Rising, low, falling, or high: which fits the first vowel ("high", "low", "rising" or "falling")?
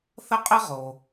high